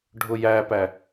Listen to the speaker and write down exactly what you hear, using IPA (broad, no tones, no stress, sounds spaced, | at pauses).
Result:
ɖʱ ʊ j æ p æ